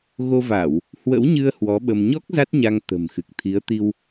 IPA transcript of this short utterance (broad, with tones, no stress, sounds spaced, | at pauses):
ɣ o˧ v a˧˩˨ w | h w ə̰˧˥ w ɲ ɨ˧ ə̯ h w ɔ˨˦ ɓ ə˧ m ɲ ɔ˦˥ k̚ z a˦˥ t̚ ɲ a˧ ŋ t̪ ə̤˨˩ m x ɨ˨˩ k̚ t̪ʰ i˨˦ ə̯ t̪ i˧ w